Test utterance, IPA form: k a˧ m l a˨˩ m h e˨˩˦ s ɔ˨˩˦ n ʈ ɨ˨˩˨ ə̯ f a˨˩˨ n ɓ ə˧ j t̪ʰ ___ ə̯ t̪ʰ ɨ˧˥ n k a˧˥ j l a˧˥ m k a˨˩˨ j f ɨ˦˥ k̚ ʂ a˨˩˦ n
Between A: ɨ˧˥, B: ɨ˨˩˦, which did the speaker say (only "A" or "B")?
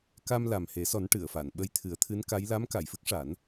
B